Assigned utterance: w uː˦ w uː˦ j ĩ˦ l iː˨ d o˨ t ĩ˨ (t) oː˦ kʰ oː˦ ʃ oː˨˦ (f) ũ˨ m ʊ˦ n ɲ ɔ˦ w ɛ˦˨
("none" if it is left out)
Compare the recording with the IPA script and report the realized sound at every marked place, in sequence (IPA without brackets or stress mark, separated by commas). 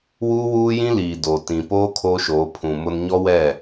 p, pʰ